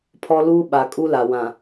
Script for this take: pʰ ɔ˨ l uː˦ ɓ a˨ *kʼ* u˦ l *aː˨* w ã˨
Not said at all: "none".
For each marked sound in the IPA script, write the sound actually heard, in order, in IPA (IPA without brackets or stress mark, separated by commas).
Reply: kʼ, a˨